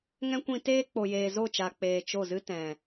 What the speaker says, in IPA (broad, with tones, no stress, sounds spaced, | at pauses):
ŋ ɛ̃˦ kʷ ĩ˧ t eː˦ k͡p o˨ j eː˨ z o˦˨ t͡ʃ a˨ k͡p eː˨ t͡ʃ o˦˨ z ɨ˦ t ɛ̃˨